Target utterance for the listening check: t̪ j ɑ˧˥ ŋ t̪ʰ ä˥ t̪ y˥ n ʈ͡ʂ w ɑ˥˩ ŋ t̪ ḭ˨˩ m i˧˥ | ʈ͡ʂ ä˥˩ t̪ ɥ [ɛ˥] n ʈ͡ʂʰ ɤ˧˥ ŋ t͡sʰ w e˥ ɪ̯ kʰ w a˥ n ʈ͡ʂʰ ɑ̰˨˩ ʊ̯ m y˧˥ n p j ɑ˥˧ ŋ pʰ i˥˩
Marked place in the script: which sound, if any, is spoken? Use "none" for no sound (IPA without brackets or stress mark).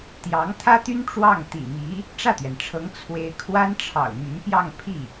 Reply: ɛ˩